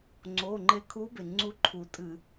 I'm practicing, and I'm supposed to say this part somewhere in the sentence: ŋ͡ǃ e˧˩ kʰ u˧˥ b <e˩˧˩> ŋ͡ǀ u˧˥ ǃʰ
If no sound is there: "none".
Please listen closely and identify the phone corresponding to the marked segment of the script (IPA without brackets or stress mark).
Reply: e˩